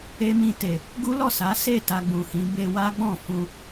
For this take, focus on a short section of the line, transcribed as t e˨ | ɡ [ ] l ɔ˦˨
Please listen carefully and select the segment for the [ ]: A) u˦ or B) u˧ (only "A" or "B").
A